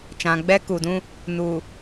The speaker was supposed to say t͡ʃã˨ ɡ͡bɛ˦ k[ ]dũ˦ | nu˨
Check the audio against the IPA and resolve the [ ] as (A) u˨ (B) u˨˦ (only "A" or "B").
A